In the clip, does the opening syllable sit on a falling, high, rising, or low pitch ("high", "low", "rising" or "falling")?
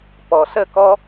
low